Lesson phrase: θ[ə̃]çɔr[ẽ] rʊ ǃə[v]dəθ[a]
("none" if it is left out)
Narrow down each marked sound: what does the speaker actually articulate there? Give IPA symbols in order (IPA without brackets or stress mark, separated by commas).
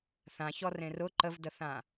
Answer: ã, ẽ, v, ã